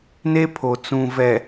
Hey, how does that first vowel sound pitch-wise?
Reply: high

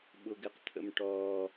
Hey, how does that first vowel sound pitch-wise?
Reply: low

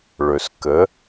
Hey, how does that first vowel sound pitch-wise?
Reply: low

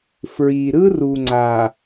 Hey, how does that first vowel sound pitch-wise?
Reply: low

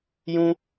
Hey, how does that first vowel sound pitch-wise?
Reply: high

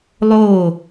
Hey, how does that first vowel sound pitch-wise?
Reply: falling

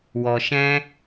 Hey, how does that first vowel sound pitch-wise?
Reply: low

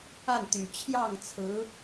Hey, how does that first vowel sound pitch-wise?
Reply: falling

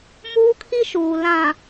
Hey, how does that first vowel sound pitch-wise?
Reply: high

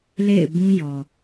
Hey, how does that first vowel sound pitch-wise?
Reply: falling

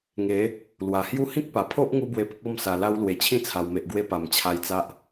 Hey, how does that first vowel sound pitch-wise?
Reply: rising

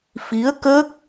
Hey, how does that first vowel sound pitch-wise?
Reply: rising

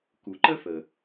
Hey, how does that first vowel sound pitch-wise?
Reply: low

